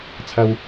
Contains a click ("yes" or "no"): no